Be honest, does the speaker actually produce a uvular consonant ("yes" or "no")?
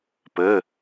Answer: no